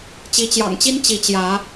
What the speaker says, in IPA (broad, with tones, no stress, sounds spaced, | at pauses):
t͡ɕ i˨˦ t͡ɕ j ɑ̰˨˩ ŋ t͡ɕ i˦ n t͡ɕ i˨˦ t͡ɕ j ä˨˦